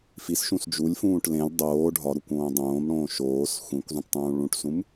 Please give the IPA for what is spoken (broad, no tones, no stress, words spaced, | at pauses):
fisʃũs d͡ʒulʲfũːʈ lẽlʲ dˤoː ɖʱɒɾukʷõː dˤõːmɽõː ʃoːs xʷĩkʷzˤĩʈtˤũː ɭũʈsũm